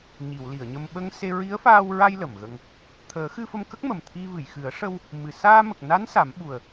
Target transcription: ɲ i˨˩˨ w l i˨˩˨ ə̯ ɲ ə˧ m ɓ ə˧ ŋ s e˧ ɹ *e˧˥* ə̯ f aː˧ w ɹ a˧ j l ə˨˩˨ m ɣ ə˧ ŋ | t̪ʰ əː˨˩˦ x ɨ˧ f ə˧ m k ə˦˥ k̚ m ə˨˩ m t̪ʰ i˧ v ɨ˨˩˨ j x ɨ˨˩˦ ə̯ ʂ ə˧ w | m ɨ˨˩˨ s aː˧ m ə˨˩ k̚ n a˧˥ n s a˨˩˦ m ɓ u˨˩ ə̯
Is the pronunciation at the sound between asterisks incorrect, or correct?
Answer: incorrect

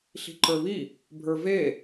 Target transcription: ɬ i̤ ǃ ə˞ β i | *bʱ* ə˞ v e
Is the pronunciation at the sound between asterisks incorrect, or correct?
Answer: correct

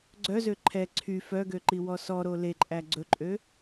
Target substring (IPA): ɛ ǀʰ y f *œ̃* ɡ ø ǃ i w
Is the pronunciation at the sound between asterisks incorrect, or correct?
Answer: incorrect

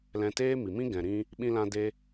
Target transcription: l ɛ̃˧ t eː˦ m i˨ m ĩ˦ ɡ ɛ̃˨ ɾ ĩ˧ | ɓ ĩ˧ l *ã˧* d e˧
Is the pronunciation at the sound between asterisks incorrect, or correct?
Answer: correct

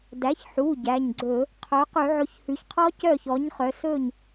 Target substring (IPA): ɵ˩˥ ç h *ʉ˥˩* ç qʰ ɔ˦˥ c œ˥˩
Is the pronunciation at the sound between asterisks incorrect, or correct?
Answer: incorrect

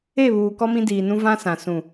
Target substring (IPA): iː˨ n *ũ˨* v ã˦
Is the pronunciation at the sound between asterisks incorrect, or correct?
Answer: incorrect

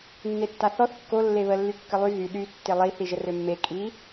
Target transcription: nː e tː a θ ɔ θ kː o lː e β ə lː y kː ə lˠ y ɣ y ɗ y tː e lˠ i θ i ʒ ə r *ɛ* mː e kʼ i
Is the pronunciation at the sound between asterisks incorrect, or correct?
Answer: incorrect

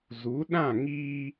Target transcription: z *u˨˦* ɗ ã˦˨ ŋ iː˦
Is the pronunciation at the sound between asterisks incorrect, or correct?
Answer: correct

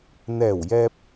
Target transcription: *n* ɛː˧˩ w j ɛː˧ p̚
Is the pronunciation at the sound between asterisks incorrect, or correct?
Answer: correct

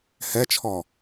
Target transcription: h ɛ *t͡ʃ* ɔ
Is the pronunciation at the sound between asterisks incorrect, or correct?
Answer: incorrect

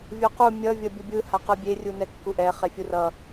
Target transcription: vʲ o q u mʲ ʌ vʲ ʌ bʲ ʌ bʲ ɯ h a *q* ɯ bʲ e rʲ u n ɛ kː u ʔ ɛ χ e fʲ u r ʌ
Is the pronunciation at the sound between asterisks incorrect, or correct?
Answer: correct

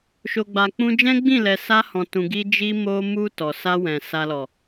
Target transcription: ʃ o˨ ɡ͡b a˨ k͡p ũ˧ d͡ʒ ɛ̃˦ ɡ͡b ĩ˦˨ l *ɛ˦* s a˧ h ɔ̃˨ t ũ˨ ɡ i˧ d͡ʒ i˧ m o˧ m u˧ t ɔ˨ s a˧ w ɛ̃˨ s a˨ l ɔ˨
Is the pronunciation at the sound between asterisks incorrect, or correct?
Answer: incorrect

